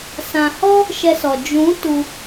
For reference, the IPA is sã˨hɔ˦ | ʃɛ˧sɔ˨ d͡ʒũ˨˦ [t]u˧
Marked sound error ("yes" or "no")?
no